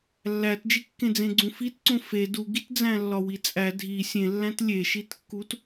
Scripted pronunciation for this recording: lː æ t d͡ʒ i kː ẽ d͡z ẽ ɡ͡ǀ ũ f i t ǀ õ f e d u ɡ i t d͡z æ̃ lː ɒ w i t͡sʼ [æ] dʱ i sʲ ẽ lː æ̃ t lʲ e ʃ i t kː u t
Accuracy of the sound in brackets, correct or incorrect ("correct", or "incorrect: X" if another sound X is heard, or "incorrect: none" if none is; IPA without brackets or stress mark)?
correct